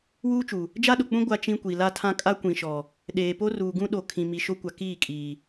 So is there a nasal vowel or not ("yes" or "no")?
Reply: yes